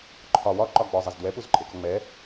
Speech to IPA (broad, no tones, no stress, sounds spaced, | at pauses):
ǃʰ ɒ w ɒ ǃ ɒ ɡ͡b ɔ zˤ ɛ z d w ɛ p u z ǃʼ e k ɔ ŋ͡m ɛ